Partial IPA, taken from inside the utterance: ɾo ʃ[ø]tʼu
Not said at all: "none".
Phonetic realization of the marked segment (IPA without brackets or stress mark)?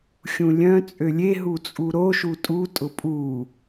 u